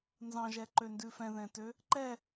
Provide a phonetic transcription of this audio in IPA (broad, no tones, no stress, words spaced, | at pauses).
nzɑ̃ʒɛǃøndʉ fɛ̃ðɛ̃tø | ǃɛ